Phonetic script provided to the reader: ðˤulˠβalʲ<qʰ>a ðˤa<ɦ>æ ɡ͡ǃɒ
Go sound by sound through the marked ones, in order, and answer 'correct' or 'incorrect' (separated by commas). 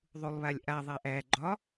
incorrect, incorrect